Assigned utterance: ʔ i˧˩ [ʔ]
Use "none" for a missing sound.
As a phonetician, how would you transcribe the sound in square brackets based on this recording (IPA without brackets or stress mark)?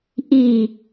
none